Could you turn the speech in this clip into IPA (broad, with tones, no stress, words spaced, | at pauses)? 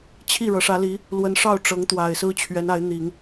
t͡ɕʰi˥˩ ɻɤ˧˥ʂä˧˥li˧˥ | lwə˧˥nʂɑ˥˩ʊ̯ ʈ͡ʂɤ˧˥ŋt̪wa˨˩ɪ̯sɹ̩˥ t͡ɕʰɥɛ˧˥na˧˥ɪ̯n̪i˨˩˦ŋ